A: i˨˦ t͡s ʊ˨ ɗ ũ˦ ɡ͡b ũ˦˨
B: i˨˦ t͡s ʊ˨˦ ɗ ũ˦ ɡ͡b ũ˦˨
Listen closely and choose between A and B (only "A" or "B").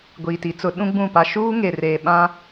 B